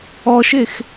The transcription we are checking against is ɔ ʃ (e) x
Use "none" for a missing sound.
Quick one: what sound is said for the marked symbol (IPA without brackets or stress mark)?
e